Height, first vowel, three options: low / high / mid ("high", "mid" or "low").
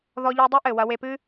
mid